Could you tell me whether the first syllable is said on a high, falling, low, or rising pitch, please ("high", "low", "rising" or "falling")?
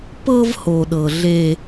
high